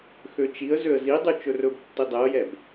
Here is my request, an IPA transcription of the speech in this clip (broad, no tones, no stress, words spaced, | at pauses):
xøt͡ʃiə̯ zøə̯zidˤʉ t͡ʃɵrɵb tːidˤɛə̯jɛb